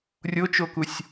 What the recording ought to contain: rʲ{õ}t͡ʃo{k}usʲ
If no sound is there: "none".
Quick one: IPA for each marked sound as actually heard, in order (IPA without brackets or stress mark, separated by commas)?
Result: o, k